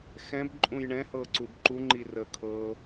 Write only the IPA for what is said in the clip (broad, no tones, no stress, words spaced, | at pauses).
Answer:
xɛ̃bǃʼũj ɳɛ̃hɤǀub ǃuŋ͡ǃi rəkʰɤ